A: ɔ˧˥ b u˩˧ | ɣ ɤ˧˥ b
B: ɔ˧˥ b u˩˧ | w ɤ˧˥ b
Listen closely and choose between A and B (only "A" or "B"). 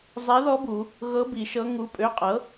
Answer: A